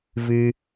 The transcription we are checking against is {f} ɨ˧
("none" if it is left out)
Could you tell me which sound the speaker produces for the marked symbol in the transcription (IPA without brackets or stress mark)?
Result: v